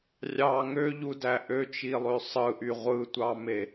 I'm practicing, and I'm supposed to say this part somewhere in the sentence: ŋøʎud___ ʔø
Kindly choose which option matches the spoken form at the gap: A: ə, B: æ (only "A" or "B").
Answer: B